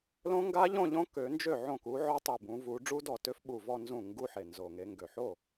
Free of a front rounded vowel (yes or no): no